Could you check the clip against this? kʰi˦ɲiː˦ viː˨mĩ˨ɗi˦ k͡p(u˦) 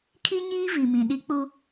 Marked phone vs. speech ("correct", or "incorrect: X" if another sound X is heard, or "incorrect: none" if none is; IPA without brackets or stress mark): correct